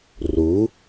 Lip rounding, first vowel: rounded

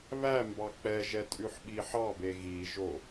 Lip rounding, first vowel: unrounded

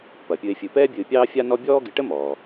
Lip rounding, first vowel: unrounded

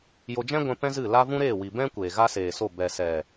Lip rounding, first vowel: rounded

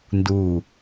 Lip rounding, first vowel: rounded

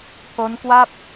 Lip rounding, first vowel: rounded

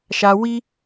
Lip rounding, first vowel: unrounded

